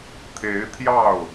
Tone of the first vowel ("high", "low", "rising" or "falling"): rising